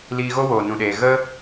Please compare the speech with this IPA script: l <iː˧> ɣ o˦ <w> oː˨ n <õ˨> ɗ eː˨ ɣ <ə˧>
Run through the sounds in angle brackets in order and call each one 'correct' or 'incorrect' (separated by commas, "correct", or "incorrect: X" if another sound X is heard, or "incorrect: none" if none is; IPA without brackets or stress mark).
correct, correct, incorrect: ũ˨, incorrect: ə˦